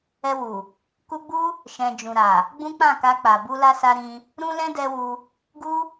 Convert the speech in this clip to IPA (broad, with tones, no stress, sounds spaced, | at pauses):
ɛ˧ w u˨ | k u˧ ɡ͡b u˦ | ʃ ɛ̃˨ d͡ʒ ũ˨ ɾ a˨ | ɡ͡b ũ˦ k͡p ã˦˨ k a˧ k͡p a˨ b u˧ l a˧ s a˧ ɾ ĩ˧ | ɾ ũ˦ l ɛ̃˦ d ɛ˧ w u˧ | ɡ u˦